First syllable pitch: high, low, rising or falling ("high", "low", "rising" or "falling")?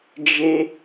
high